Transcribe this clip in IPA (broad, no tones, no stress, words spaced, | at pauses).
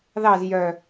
ðɑz jœ